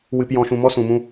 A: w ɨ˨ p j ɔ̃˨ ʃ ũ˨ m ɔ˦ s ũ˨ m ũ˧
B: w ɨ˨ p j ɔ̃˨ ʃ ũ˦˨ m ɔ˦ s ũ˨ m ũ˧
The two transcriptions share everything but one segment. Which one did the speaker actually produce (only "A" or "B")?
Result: A